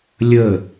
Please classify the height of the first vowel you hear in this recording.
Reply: mid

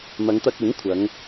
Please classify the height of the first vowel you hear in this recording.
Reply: low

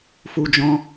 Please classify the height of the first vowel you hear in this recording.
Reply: high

